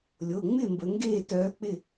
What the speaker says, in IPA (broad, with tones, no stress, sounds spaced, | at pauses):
lʲ o˩˧˩ ŋ͡m ɪ˥˩ m b ə˩˧ ŋ ɡ eː˥˩ t œː˨˥ k͡p ɪ˥˩